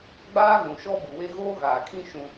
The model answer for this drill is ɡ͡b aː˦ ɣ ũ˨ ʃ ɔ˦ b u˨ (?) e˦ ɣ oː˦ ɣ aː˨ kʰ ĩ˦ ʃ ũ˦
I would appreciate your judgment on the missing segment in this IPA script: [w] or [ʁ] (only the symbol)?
w